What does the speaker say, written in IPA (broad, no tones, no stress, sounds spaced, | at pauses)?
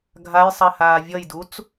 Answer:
ɡʱ a j sˤ e h aː vʲ ʌ j d u t͡s